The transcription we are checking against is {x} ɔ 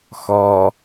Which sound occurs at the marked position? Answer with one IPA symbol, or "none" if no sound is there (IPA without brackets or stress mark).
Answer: x